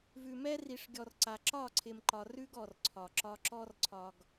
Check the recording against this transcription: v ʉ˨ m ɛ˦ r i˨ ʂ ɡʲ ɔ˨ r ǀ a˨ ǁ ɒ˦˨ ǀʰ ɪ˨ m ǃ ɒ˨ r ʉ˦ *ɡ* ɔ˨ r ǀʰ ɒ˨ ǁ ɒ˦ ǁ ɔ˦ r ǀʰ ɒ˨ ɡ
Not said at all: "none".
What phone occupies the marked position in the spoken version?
ɡ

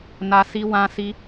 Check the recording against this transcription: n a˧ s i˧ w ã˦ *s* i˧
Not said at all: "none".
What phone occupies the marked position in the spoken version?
s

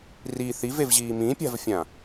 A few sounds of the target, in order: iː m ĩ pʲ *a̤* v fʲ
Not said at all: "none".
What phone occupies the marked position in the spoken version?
a̤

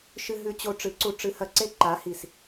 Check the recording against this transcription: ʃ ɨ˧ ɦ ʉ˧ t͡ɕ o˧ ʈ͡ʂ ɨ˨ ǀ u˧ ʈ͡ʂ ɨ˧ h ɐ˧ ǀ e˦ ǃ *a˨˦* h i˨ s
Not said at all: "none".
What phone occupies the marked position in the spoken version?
a˨˦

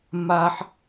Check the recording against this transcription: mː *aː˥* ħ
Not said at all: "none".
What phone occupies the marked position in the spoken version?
aː˥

